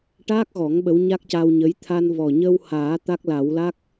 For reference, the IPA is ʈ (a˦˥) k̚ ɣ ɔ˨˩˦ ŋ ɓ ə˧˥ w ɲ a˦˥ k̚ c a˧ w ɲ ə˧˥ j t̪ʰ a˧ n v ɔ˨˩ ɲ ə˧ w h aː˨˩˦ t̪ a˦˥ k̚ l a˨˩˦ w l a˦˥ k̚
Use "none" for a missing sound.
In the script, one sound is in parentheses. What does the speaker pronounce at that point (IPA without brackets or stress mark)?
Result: aː˦˥